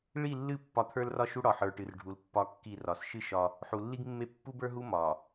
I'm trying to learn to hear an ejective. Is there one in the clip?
no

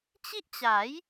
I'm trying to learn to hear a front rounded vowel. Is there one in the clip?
no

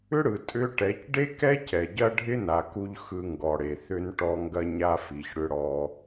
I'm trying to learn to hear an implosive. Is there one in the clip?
no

